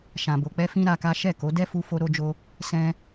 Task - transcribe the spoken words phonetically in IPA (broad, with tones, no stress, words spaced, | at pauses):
ʃã˨bo˨k͡pɛ˧ fĩ˦ɾa˧ka˦ ʃɛ˦˨ko˨˦ dɛ˦fu˧ fo˧ɾo˧d͡ʒo˧ | sɛ̃˧